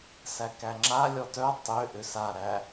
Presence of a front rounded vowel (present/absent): present